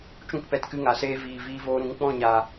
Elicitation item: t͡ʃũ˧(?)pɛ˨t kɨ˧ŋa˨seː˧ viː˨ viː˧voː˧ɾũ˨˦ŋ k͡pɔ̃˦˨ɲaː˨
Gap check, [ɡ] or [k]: k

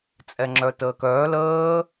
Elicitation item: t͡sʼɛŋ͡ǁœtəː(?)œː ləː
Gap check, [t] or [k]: k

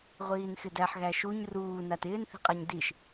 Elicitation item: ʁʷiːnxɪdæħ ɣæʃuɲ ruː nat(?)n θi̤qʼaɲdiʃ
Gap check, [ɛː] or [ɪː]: ɪː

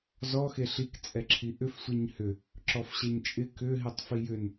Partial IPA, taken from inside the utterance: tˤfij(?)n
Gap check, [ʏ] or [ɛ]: ʏ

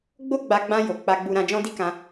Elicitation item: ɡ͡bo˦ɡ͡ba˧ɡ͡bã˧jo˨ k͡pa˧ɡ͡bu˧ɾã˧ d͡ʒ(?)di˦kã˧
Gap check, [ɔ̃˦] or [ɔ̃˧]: ɔ̃˦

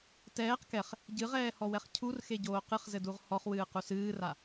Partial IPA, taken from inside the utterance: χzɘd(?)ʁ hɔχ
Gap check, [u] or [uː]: u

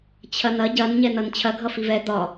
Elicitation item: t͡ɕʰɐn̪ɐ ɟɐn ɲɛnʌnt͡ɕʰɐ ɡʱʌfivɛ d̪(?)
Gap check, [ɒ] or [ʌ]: ɒ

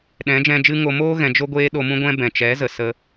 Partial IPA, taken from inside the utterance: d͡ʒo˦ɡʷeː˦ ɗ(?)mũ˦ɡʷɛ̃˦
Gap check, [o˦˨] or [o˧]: o˧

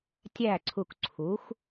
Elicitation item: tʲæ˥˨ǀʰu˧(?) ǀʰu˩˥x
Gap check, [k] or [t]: k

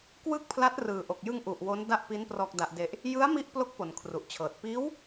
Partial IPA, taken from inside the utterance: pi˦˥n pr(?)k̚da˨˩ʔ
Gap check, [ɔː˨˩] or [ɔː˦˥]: ɔː˨˩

